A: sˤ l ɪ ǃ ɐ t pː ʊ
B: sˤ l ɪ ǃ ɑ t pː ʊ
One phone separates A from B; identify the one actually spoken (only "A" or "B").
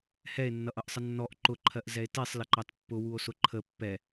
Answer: B